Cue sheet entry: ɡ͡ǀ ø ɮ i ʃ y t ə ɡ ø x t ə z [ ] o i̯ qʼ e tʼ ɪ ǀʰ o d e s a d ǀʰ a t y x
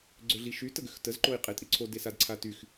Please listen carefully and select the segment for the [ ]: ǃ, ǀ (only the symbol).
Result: ǃ